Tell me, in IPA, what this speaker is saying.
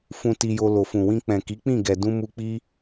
fũ˧ ti˧jo˧ lo˨fũ˨wĩ˧ k͡pɛ̃˨ki˨˦k͡pĩ˦˨ ɡɛ˨dũ˧ mu˧k͡pi˦

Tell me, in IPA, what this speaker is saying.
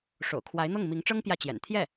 ʂo̰˨˩ʊ̯kʰwa˧˥ɪ̯n̪ɤ˥˩ŋ mi˧˥ŋʈ͡ʂɤ˥ŋ pjä˥˩t͡ɕjɛ̰˨˩n t̪ʰjɛ˥˩

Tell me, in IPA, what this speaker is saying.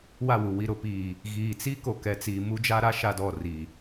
wa˦˨wu˨ wi˨ɾʊ˨piː˨ | ɣiː˨t͡si˦ ko˨kɛ˨t͡siː˨ mu˦d͡ʒa˦ɾa˦ ʃa˦dɔ˦˨ri˨

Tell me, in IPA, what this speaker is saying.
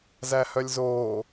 zæhœlʲzoː

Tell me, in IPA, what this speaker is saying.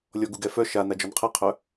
lʲɔɡuɡɛ fœ ʃanad͡ʒɔn qʰɛqʰœ

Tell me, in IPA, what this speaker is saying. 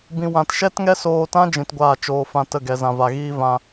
bĩ˧wã˧t ʃɛ˦tŋɛ˦soː˧tã˦ d͡ʒĩ˧tɡʷaː˦˨t͡ʃoː˧ fã˧tə˦˨ ɡɛ˨zã˨va˨ɣiː˦ vã˧

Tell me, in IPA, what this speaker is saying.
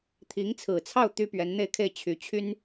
t̪ʰi˧˥ŋt͡sʰɹ̩˨˩t͡sʰɑ˥˩ʊ̯ t̪y˥pɥɛ˧˥nn̪e˥˧ɪ̯kʰe˥˩ɪ̯ t͡ɕʰy˧˥t͡ɕʰy˥n

